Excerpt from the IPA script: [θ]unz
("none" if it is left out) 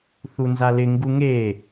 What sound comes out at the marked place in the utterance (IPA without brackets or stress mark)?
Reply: θ